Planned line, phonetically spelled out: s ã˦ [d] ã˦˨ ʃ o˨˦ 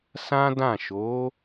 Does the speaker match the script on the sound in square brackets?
yes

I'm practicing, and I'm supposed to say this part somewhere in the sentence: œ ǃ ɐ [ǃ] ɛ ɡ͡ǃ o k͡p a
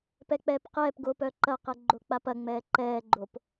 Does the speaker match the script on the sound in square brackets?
no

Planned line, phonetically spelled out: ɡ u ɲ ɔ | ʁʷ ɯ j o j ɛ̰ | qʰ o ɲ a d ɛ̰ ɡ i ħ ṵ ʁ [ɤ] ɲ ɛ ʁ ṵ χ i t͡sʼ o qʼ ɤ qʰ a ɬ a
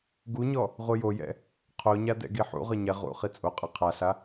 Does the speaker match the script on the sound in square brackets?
yes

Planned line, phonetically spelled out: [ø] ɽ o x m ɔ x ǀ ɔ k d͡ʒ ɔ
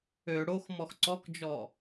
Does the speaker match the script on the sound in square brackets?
yes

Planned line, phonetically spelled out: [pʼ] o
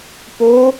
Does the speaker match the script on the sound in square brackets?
no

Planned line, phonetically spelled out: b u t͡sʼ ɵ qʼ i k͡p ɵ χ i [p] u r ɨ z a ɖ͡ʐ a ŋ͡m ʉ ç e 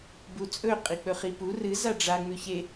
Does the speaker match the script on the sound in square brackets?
yes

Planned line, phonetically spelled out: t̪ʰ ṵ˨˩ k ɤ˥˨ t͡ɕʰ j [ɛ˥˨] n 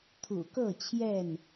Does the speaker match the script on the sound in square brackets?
yes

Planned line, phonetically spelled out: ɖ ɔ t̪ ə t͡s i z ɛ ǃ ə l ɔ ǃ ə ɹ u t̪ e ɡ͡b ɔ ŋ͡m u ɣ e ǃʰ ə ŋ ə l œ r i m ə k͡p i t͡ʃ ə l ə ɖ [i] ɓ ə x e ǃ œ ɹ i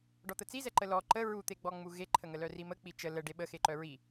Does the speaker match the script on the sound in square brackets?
no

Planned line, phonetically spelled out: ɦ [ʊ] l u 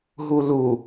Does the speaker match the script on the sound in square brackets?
no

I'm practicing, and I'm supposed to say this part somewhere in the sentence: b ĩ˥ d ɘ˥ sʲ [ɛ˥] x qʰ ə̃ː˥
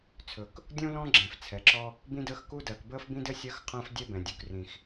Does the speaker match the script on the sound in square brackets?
no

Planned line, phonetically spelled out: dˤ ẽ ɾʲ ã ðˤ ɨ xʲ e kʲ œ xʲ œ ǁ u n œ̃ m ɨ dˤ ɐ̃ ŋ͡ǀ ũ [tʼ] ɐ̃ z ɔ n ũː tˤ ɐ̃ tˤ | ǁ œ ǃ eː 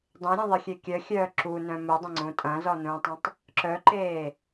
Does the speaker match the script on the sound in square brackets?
yes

